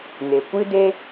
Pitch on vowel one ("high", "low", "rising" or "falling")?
low